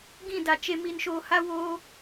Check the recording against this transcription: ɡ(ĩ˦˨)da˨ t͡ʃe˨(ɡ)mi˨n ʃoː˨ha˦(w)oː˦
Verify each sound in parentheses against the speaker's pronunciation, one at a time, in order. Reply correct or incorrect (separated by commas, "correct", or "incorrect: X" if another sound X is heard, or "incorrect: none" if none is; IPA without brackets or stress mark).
correct, incorrect: none, correct